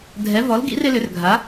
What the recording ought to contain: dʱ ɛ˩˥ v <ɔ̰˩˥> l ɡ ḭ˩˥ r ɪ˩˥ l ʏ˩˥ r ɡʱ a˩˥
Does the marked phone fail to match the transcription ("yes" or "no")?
yes